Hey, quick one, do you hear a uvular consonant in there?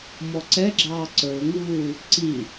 no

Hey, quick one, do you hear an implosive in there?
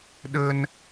yes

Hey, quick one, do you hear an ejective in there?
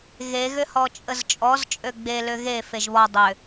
yes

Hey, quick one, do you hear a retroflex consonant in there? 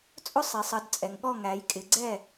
no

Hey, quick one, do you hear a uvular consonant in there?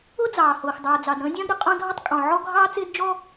yes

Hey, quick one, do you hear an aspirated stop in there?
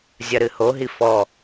no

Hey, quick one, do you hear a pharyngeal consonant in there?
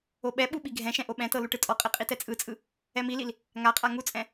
no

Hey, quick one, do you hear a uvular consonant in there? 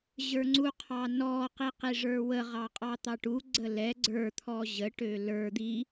yes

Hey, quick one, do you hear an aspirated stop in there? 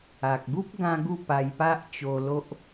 no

